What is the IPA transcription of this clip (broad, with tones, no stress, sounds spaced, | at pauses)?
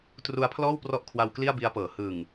t r u˧ a̯ pʰ l ɔː˥˩ w p r ɔ˦˥ ʔ kʰ w a˧ w k l i˥˩ a̯ b i˦˥ a̯ p ɤː˩˦ h ɯ˨˩ ŋ